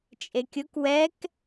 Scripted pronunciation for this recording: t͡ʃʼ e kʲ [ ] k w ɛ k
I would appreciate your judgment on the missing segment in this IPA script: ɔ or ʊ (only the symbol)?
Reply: ʊ